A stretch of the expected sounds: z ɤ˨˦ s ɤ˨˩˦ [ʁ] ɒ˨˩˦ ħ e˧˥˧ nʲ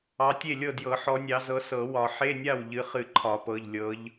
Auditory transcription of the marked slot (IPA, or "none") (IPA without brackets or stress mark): w